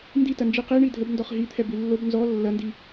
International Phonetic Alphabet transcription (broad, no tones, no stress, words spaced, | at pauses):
nditɐnd͡ʒi qiɳi dʱəbndɔχ ɦit̪ʰɛbi lːob nzɔ lːɐndi